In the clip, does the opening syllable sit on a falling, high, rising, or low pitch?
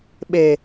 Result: low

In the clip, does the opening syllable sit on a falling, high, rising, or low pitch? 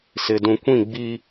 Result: low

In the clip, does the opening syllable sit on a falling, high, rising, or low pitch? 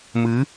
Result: rising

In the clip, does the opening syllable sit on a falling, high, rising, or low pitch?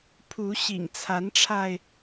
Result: rising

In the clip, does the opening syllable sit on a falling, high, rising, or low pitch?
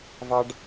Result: high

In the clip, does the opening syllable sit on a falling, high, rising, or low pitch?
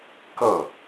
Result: falling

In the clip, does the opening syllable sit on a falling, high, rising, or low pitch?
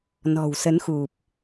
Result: low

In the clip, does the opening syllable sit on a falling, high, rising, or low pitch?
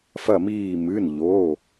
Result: falling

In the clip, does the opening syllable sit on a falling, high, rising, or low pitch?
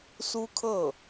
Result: high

